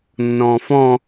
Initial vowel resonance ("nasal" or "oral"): nasal